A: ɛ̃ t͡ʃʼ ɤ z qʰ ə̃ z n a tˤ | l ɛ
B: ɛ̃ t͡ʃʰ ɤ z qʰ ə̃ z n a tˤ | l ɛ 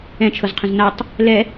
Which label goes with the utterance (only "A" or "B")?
B